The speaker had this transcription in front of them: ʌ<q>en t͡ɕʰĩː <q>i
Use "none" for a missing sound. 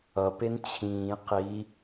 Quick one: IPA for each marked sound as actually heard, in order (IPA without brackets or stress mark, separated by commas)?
p, q